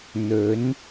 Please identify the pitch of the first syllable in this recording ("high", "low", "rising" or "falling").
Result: rising